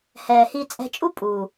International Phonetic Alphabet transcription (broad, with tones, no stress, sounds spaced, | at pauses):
h ɛː˨ h i˧ t͡sʼ ɛ̤˧ t͡ʃʼ u˦ pʼ uː˨